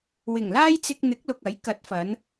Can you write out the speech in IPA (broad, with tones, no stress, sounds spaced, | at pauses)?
w ɪ˨˩ ŋ l aː˥ j t͡s ɪ˧ k̚ n̪ ɪ˨˥ k̚ l ʊ˨ k̚ ɐ˨˥ j k ɐ˨˥ t̚ f ɐ˨˧ n